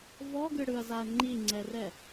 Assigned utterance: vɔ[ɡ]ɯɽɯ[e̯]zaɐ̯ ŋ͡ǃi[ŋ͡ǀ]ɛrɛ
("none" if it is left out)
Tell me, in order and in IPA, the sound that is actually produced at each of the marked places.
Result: ɡ, ɐ̯, ŋ͡ǀ

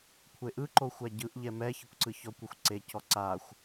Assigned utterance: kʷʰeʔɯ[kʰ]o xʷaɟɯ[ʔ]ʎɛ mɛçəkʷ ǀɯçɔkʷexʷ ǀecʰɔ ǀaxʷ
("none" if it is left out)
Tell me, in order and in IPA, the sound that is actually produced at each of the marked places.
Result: ǃ, ʔ

